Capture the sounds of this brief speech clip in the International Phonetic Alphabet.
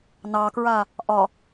n ɑ k ɹ a | ʔ ɒ

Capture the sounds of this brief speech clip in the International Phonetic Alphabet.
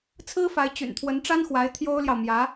t͡sʰ ɹ̩˥ f a˧˥ ɪ̯ t͡ɕ y̰˨˩ n t̪ʰ w ə˧˥ n ʈ͡ʂ a˥ n x w a˧˥ ɪ̯ t̪ʰ j o˥ ʊ̯ l j ɑ˨ ʊ̯ m j ä˧˥

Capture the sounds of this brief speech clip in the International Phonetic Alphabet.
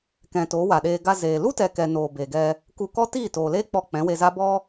k ɛ̃˨ t oː˨˦ w a˨ ɗ eː˧ ɡ a˧ z eː˨ l u˦ t ɛ˨ k ɛ˨ n oː˨ b e˨ ɡ ɛ˧ | k u˧ k ɔ˦ t iː˦˨ t oː˨ l eː˦ k͡p ɔ˧ k͡p ɛ̃˨˦ w e˧ z a˦ b ɔ˦

